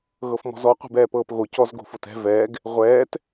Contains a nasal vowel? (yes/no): no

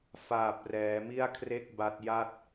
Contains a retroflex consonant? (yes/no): no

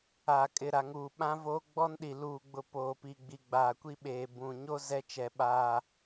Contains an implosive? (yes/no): yes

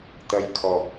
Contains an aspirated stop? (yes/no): yes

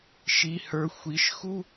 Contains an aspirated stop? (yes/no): no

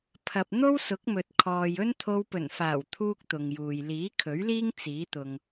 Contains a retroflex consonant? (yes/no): no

